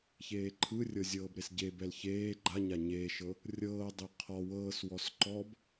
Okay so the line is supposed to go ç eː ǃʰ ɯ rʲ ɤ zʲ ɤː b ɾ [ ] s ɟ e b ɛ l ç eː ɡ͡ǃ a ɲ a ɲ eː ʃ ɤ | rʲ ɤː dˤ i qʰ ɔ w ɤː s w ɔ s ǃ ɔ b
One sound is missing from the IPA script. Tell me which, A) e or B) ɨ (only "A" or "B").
A